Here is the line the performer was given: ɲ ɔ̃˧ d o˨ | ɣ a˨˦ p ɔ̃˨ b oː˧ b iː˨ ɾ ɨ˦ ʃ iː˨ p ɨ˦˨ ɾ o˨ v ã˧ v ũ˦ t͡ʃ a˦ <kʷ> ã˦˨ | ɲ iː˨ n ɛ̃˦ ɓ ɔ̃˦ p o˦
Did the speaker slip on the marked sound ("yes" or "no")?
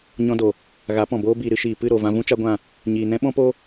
yes